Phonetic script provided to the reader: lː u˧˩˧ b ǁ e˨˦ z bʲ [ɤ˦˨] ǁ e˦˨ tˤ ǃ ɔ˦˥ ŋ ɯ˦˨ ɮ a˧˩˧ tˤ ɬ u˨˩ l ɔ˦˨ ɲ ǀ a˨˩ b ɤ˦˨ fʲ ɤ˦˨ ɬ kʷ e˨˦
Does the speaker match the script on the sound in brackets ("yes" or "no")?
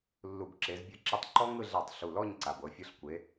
yes